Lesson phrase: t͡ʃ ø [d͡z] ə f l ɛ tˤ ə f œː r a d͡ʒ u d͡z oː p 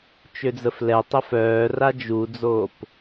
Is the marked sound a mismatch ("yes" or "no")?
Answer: no